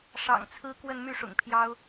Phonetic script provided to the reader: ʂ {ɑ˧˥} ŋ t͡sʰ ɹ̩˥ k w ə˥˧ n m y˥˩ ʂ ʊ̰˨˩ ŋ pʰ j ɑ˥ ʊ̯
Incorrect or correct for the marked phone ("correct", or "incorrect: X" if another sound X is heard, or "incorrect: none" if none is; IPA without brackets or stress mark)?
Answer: incorrect: ɑ̰˨˩